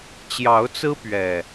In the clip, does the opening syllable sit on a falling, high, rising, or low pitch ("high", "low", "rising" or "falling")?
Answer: rising